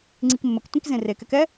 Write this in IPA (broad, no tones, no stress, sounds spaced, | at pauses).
ŋ͡ǀ i k mː ə k tʷ ĩ k z ẽ r e k ɛ k ɛ